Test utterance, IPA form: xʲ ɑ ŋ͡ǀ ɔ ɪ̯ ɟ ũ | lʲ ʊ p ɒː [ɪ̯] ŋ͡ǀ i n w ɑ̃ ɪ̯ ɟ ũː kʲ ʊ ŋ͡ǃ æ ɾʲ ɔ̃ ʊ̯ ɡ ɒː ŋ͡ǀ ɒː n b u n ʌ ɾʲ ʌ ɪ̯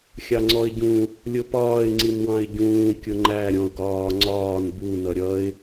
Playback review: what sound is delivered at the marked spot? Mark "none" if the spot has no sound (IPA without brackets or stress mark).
ɪ̯